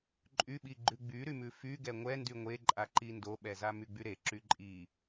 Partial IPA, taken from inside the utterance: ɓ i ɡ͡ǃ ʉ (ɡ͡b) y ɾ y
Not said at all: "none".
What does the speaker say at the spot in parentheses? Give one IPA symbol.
ɡ͡b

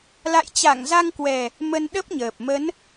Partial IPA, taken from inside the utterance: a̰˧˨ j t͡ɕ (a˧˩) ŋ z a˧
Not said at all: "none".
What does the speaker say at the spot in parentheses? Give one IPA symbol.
a˧˩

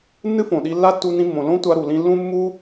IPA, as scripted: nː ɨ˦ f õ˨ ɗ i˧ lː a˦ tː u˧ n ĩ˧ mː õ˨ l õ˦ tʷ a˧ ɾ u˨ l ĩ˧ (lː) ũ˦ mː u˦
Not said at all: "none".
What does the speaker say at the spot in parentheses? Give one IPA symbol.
lː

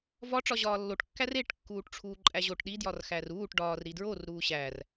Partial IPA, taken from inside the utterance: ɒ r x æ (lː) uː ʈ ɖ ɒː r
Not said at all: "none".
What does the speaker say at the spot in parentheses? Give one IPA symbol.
r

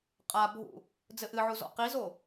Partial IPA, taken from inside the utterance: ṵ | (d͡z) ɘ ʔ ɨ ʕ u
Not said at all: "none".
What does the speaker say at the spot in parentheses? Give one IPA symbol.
d͡z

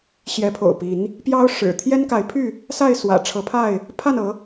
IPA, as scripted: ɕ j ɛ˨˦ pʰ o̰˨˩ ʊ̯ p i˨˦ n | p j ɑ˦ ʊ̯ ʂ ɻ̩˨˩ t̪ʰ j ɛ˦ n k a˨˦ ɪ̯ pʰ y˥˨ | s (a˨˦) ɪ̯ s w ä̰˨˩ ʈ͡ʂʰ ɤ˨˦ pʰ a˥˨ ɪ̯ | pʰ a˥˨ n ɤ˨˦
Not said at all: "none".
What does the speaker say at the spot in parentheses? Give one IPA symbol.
a˥˨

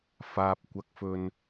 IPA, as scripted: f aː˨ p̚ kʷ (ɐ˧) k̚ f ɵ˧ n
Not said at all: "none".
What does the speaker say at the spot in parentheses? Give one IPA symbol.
ɐ˧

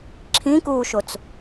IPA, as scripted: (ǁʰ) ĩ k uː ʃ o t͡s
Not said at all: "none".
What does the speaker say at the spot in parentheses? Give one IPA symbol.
ǁʰ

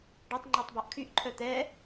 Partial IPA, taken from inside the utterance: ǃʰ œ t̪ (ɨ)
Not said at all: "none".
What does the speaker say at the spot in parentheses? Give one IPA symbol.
ɛ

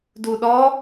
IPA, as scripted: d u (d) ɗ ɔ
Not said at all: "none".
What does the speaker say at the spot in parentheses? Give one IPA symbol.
none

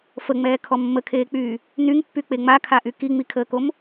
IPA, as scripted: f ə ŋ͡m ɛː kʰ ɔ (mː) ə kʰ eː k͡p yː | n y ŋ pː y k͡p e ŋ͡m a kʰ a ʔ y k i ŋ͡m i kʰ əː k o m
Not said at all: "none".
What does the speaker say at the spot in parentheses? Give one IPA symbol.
mː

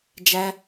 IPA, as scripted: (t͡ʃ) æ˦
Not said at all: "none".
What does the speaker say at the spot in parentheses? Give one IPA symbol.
d͡ʒ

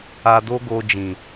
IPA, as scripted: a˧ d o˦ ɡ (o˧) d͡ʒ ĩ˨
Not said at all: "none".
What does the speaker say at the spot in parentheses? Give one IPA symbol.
o˧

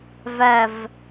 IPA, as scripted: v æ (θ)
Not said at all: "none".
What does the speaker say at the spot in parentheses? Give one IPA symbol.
v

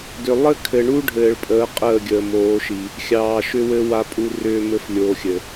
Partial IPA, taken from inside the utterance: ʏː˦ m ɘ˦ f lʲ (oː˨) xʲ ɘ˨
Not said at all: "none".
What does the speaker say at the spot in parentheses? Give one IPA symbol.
oː˨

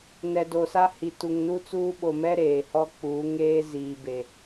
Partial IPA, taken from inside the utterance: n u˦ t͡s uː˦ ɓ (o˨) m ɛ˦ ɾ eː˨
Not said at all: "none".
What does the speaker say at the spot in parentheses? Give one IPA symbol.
o˨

